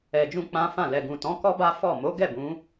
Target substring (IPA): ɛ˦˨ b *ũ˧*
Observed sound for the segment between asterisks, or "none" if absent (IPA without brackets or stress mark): ũ˨˦